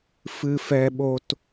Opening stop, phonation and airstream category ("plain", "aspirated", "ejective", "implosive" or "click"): implosive